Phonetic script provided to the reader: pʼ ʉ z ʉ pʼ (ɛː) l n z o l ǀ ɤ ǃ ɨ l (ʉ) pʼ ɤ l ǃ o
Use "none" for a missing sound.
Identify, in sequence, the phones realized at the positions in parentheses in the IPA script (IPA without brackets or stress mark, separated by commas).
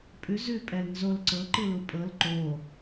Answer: ɛ, u